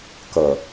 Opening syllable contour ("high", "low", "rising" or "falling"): low